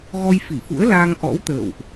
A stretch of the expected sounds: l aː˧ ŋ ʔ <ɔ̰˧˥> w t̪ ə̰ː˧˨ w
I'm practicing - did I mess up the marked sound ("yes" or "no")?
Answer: no